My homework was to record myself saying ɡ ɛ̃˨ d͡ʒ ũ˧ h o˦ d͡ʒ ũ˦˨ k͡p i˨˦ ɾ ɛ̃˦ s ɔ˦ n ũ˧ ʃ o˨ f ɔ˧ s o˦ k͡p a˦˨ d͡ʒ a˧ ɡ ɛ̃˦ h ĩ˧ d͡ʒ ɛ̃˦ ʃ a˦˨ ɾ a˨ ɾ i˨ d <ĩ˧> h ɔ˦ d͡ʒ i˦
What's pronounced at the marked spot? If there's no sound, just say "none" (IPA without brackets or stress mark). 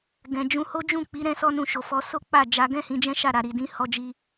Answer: ĩ˧